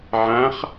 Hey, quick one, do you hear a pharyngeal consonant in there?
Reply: yes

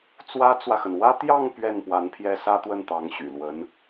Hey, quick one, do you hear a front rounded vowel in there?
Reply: yes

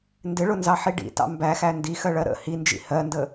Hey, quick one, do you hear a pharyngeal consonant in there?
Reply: yes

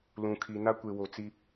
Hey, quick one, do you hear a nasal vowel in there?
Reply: yes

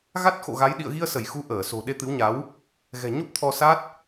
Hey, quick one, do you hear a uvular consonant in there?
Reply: no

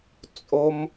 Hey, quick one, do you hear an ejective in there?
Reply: yes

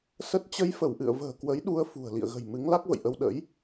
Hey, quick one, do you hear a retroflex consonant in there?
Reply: no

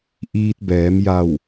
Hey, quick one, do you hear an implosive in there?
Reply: no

